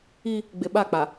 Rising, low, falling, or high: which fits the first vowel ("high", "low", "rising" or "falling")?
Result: high